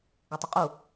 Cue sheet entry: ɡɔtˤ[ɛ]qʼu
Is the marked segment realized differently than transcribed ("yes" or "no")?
yes